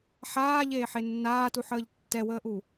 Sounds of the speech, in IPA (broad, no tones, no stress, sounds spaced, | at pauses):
ħ aː ʎ eː ħ e nː aː t u ħ əː ʎ tː ɛ w əː ʔ u